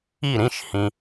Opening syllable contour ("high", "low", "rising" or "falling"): falling